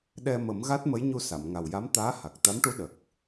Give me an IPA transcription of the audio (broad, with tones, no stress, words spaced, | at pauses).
ɗɛ˧mə˨˩˦mɣa˦˥t̚ mə˧˥jɲu˧sa˨˩˨mŋa˨˩w ja˧˥mt̪aː˧˥ha˨˩k̚ t̪a˧˥mʈu˧˥ ɗə˨˩k̚